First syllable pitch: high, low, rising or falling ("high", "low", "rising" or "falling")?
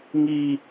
low